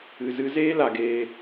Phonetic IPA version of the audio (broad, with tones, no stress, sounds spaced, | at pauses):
ɨ˨ z ɨ˧ z eː˦ l a˧ ɡ eː˦